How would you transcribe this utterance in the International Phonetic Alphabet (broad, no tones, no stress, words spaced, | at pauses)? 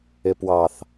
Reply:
ɪpwɑθ